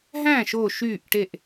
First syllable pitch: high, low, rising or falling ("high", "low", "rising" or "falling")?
falling